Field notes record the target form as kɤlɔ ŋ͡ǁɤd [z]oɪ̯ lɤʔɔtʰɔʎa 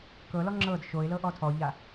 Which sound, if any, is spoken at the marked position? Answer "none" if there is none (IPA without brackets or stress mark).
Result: ʃ